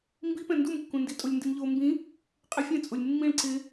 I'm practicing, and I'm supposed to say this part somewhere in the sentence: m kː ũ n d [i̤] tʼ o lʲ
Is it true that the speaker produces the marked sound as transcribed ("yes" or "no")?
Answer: no